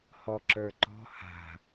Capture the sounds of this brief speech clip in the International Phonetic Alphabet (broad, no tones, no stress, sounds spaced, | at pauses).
h ɔ ǁ ə˞ ǃ ɔ̤ h a̤